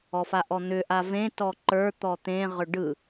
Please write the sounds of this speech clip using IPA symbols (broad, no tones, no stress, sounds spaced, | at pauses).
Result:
ɔ f a ʔ ɔ n̪ ʏ ʔ a v ẽ t ɔ ǃ ə˞ t̪ ɔ t̪ ẽ ʁ ʏ ɖ ɯ